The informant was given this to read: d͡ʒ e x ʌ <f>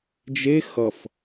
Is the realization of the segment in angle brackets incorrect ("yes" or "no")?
no